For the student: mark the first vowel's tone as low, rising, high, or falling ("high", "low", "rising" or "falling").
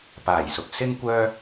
low